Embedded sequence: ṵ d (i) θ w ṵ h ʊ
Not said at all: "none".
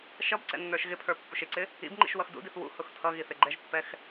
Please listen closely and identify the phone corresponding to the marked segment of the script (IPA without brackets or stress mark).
i